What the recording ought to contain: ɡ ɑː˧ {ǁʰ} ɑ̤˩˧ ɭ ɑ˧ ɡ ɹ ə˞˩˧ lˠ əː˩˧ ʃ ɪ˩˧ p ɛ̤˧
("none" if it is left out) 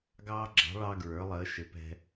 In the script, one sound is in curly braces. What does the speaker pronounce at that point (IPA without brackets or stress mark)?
ɡ͡ǁ